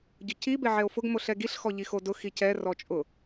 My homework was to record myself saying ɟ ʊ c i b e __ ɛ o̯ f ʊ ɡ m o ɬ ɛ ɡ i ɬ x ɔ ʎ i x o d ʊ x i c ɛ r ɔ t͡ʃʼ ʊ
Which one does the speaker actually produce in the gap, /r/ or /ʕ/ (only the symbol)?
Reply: ʕ